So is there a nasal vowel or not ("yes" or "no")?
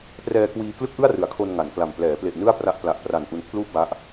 no